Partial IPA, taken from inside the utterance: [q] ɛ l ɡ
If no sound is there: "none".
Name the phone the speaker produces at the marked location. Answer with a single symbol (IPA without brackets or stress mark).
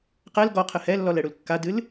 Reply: q